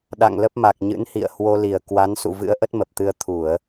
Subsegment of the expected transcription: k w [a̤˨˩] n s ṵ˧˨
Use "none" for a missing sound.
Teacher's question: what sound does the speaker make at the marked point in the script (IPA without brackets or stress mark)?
a˨˦